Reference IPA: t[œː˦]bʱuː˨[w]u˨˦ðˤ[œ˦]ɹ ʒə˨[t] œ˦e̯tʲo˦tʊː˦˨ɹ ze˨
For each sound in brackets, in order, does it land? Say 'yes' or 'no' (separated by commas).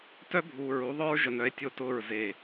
no, no, yes, no